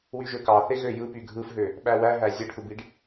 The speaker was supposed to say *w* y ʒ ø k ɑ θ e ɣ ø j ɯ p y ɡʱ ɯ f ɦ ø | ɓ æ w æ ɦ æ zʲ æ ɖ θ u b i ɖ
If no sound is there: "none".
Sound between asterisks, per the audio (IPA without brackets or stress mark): w